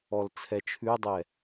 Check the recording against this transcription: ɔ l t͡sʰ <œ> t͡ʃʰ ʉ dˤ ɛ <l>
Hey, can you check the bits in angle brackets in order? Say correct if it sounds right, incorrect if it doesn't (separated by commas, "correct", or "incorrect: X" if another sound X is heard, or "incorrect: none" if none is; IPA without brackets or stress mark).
incorrect: ɛ, incorrect: none